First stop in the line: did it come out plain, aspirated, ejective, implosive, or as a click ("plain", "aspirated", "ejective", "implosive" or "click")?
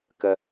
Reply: plain